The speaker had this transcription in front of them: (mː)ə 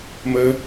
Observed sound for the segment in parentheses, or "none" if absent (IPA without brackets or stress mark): m